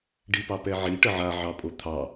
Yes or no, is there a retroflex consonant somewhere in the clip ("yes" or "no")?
yes